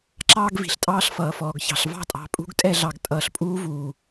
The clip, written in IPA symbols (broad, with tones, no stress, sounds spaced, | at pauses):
ǁ ɑː˦ ɡ v i̤˨ ɬ tʼ ɑː˦ ɬ f ʌː˨ f ɔː˨ ɡ ç ɑ̤˨ ɬ v ɑ̤˦ tʼ ɑ̤˨ pʼ ṳ˦ ɡ tʼ ɛ˦˨ ɮ ɑ˨ ɡ tʼ ʌː˨ ɬ pʼ uː˦ v uː˨